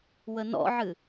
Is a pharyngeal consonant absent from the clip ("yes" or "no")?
no